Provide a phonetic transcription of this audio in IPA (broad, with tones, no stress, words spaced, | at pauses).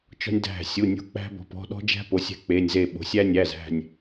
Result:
t͡ʃɔ̤˦nʲdæ̤˧˩ sʲu˩˧˩nʲo̤˧˩k͡pæ̤˦ bɔ̤˩˧pɔ̤˩˧˩ ɗɔ̤˦d͡ʒæ̤˦po˩˧ sʲæ̤˦k͡pe˩˧˩nʲze˧˩ ɓo̤˩˧sʲæ˦nʲæ˩˧˩z æ̤˧˩nʲ